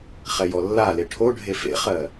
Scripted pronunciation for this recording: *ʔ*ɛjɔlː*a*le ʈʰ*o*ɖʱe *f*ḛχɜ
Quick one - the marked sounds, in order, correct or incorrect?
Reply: incorrect, correct, correct, correct

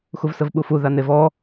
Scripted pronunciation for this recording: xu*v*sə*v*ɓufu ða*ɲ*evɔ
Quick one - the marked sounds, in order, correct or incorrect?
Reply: correct, correct, incorrect

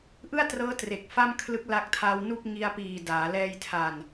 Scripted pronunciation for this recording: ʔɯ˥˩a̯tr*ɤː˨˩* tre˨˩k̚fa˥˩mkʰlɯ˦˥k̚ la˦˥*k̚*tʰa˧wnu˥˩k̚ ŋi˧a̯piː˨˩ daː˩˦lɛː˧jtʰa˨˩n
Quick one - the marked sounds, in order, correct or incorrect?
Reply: incorrect, correct

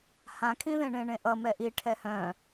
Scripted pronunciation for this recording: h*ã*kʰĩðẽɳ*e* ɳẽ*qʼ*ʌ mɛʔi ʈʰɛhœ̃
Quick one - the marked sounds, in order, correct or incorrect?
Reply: correct, incorrect, incorrect

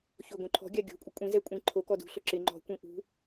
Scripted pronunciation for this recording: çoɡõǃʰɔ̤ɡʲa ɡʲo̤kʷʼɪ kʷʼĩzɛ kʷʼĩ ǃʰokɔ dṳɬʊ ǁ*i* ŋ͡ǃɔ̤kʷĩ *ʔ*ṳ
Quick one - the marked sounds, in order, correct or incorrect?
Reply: incorrect, correct

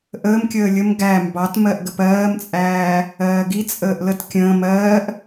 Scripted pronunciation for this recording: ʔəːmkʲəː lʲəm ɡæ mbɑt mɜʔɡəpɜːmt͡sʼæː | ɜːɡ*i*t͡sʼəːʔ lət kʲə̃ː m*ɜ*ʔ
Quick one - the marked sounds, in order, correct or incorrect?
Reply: correct, incorrect

